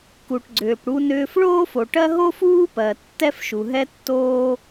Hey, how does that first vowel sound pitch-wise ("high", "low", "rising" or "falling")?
low